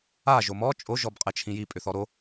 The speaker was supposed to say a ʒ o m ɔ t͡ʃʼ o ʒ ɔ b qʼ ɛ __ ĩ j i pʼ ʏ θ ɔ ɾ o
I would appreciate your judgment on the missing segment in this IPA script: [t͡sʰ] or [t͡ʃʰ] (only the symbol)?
t͡ʃʰ